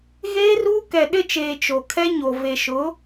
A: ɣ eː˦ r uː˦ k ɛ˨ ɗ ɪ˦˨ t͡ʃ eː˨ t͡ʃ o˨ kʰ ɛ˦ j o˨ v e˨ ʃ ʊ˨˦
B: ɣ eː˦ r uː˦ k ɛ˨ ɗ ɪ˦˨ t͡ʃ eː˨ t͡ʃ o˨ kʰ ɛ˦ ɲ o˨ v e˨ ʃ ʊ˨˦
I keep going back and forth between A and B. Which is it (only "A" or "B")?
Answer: B